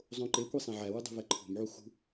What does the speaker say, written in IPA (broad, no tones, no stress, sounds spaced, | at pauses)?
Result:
zˤ õ ǃ e kʷ e sˤ æ̃ ʕ æ w u dˤ ṳ v æ ǃʰ o̤ m ʕ u x ṳ